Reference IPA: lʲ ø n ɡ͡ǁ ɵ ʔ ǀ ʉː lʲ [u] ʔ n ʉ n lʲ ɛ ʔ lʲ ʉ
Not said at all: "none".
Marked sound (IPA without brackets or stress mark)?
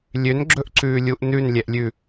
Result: u